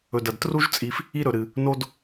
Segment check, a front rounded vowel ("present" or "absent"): absent